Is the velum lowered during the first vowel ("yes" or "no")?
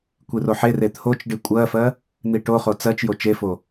no